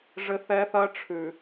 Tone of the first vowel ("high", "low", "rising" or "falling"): high